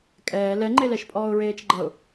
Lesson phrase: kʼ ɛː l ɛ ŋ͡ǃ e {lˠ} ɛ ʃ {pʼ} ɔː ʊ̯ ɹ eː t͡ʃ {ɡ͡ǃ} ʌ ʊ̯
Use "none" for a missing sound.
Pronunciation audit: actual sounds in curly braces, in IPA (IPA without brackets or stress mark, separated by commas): l, pʼ, ɡ͡ǃ